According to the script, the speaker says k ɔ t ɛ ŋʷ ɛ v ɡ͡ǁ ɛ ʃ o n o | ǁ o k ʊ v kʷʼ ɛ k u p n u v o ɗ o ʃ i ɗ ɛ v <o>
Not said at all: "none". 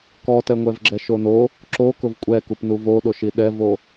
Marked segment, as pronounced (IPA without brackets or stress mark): o